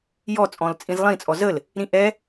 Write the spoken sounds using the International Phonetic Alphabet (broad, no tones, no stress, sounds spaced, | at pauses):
j ɔ t͡sʼ ɔ̃ l t͡sʼ ĩ z lˠ ĩ t͡sʼ ɔ z ə l | ɾ ĩ ʔ ɛ